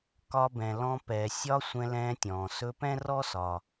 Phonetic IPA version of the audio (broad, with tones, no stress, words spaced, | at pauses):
kɒ˦bɛ̃˨lɔ̃˦ pɛ˨ sʲɒ˦ sʷɛ̃˦lɛ̃ː˦tʲɔ̃ː˩ sɵ˦pɛ̃˥rɔ˥ sɒ˩